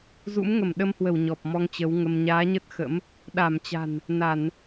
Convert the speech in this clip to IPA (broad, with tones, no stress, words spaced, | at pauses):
zṵ˧˥mŋə˧˩mɗə˧mhwə˧˩w ɲɔ˨˩p̚mɔ˧ŋt͡ɕə˨˦wŋə˧m ɲaː˨˦ɲə˦˥t̚xə̰˧˥m | ɗa˧˩m t͡ɕa̤˨˩n | na˧˩˨n